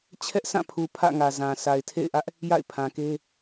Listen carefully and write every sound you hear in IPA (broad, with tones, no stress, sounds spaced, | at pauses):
t͡ɕʰ ɛ˦ ʔ s ã˦˨ pʰ u˨ pʰ ä̰˦˨ ŋ ä˨ z ã˨ sʰ a˨ ɪ̯ tʰ ḛ˦˨ ɪ̯ ʔ ä˦ ʔ | j a̰˦˨ ɪ̯ pʰ ã˨ k e˦